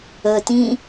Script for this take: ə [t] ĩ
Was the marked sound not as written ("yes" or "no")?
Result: no